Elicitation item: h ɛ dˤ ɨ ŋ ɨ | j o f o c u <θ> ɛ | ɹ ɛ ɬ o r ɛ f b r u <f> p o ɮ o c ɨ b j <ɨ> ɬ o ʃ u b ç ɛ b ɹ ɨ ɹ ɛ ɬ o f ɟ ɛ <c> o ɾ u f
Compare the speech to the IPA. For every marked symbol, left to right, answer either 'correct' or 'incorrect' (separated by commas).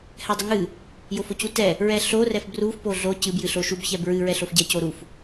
incorrect, correct, correct, correct